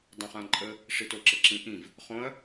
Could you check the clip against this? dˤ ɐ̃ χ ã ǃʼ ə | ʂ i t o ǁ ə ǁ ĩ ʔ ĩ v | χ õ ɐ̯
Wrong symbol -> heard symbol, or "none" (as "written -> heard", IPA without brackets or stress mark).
none